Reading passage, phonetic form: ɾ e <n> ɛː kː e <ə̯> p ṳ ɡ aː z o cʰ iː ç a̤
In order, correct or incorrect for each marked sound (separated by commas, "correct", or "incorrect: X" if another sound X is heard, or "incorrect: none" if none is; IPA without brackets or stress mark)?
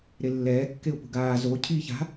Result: incorrect: lː, incorrect: ʊ̯